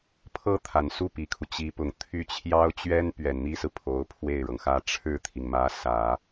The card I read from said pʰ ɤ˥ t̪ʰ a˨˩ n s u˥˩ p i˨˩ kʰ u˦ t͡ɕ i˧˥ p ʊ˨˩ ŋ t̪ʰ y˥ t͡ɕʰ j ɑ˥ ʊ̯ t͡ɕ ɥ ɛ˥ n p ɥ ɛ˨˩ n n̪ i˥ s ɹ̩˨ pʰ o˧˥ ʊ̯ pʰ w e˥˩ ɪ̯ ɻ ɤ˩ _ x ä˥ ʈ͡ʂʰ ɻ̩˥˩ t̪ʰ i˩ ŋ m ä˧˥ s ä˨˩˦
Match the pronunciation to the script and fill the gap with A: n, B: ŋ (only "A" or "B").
B